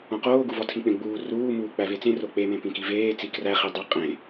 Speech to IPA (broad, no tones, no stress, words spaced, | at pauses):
õqoːɡu vɒtʰĩk͡pẽɡ͡buː ruː muːk͡pævet͡sẽ rok͡pemẽ pĩkiveːt͡si kræχidˤæ qʼẽ